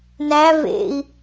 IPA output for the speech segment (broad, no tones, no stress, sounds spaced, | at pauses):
n æ v ḛ i̯